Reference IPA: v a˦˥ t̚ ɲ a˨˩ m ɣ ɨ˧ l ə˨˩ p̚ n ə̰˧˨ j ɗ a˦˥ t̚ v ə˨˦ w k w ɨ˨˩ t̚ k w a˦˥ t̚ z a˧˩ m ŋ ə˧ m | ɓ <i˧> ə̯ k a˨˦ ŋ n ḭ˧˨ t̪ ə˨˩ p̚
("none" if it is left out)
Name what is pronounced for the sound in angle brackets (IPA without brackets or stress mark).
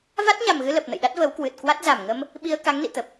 i˧